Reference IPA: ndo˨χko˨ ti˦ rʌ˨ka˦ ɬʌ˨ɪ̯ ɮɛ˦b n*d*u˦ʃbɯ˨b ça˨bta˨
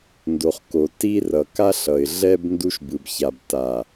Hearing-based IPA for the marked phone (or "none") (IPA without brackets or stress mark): d